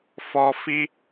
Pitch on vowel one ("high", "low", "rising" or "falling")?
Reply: low